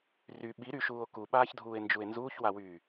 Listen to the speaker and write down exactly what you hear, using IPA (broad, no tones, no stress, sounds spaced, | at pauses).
r y ɓ i ɾ y ʃ uː o̯ k u ɓ aː ç dʱ uː e̯ n d͡ʒ u e̯ n z uː ç w a w yː